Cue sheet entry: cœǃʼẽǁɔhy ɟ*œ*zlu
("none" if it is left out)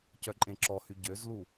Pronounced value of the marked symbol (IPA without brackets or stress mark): ø